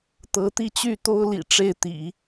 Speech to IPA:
t̪ ɤ˧˥ t̪ i˥˧ t͡ɕ y˥˩ t̪ o˥ ʊ̯ l ḭ˨˩ ʈ͡ʂ e˥˩ ɪ̯ t̪ ḭ˨˩˦

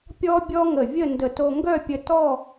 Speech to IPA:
pʲ ɔ˥ bʲ ɔ˥ ŋ ə˧˩ vʲ ə˥˧ n d ə˧˩ t o˧ ŋ ɡ œ˥˧ pʲ ə˧ t ɔ˥˧

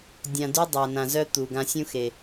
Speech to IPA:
dʲ ã˨ d y˦ dˤ a˨ n ã˨ z œ˦ t̪ u˨ ɡ ã˦ sʲ ũ˦ x e˨

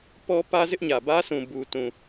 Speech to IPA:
p ɔ˦ p ä˦ z ɪ˦ ʔ ɲ ä˨ b ä˦ sʰ ũ˨ b u˨ t ũ˨

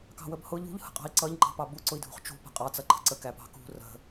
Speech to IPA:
k ɑ̤ w ə b h ʊ ʎ ṳ ʎ h ə̤ qʼ ɑ̤ i̯ ǀ ʌ ʎ ŋ͡ǃ ɑ̤ p ɑ b u ǀ ʊ i̯ dʱ ṳ χ t͡ʃ ṳ p ə̤ qʼ ɑ t͡s ʌ ǃʰ ə̤ ǀ ə k æ p ɑ̤ k ṳ r ə̤

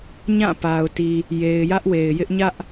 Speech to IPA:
ɲ ã˦˨ p a˨ ʊ̯ t i˨ | j e˨ ɪ̯ j ä˦ ʔ w e˨ ɪ̯ j ɪ˦ ʔ ɲ ä˦ ʔ

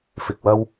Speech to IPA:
f ɪ˨ k̚ w ɐ˧ w

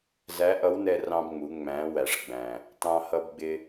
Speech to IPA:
z æ˧˥ ʔ ʌ˧˥ w n ɛ˧ r ɑ̃˧ b ŋ͡m u˩˧ ŋ͡m æ̃˩˧ w æ˩ ʂ ɡ͡b æ̃˩ | t ɑ̃˧ h ʌ˧ b ɡ͡b ɪ˧

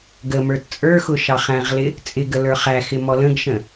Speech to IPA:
ɡ ə m ə˞ t t͡sʼ ə˞ x ʊ ʃ ɑ χ æ̃ ʁ l ɪ | t͡sʼ ɪ ɡ ə l ə˞ χ æ x ɪ m ɔ l ə̃ ɡ ʃ ə̃

